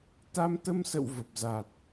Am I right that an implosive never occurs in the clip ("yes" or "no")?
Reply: yes